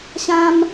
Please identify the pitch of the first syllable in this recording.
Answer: high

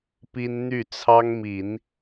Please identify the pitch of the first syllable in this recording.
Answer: high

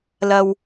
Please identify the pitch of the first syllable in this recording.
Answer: low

